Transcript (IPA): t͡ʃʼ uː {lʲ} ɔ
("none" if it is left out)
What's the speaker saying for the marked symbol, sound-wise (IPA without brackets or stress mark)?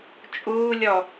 lʲ